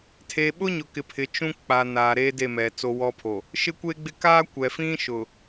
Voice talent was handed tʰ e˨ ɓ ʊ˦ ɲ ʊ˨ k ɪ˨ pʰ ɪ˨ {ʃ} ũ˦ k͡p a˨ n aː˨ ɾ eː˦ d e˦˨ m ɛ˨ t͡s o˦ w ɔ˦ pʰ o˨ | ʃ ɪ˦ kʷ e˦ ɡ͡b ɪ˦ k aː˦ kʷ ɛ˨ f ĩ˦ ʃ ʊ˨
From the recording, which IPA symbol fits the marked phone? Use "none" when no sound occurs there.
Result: t͡ʃ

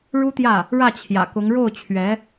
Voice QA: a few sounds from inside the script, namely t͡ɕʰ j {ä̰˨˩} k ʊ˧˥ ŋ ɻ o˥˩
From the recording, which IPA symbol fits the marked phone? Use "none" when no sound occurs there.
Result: ä̰˨˩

